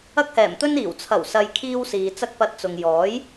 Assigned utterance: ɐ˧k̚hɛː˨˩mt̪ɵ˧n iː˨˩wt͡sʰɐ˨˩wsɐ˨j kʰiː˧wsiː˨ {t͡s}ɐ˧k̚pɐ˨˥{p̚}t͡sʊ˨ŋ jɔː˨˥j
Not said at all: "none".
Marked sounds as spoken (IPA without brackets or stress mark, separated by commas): t͡s, t̚